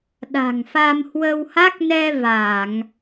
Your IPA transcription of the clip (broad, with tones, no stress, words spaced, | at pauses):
ɗa̤˨˩ŋfa˧mhwə˧wha˦˥k̚ nɛ˧ va˧˩˨ŋ